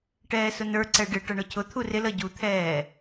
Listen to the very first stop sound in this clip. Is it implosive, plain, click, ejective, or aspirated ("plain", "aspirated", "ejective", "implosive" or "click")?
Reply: plain